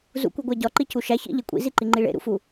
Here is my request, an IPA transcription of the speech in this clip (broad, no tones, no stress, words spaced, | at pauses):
zṵkʷiɡʷæ ɟɒǃicu ʃæ çḭʎe kʷʼḭziǃiŋ͡ǃi ɭḛɾṵfu